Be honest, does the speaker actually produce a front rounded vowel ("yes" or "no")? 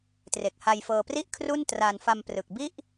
no